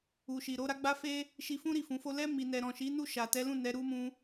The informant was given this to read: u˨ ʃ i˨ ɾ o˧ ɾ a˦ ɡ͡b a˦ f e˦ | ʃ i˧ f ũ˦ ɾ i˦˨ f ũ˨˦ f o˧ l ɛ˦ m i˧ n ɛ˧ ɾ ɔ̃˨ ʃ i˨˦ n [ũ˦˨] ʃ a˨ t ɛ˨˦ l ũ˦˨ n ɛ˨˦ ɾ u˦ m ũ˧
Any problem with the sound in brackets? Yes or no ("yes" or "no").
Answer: yes